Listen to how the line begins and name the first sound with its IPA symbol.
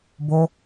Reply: b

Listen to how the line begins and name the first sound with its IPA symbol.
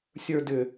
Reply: sʲ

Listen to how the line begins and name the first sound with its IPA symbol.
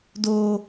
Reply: d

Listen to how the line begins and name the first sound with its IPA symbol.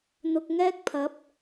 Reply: n̪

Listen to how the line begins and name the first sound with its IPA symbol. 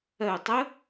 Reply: ɜ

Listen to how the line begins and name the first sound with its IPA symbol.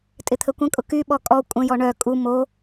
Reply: tʼ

